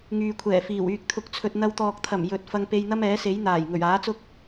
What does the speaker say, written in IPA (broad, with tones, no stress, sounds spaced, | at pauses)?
ŋ yː˨ kʷʰ ɛː˨˩ f iː˨˩ w yː˧ k̚ t̪ʰ ʊ˧ k̚ t͡sʰ ɵ˧ t̚ n̪ ɐ˧ w t̪ ɔː˨ k̚ t̪ʰ ɐ˨˩ m j ɵ˨ t̚ f ɐ˧ ŋ p e˧ j n̪ ɐ˥ m ɛː˨˥ s e˨˥ j n̪ aː˨˩ j ŋ ɵ˨˩ ɥ aː˨˥ t͡s ʊ˥ k̚